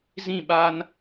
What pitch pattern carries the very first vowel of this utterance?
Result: falling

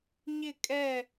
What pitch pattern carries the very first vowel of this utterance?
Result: falling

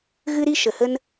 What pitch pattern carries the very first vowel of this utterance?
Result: high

